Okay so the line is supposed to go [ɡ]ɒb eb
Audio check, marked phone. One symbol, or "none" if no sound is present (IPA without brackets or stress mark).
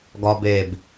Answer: ɡ